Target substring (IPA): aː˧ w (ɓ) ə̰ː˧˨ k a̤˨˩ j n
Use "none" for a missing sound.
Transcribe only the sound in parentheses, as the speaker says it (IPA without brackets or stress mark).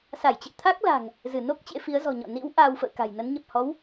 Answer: f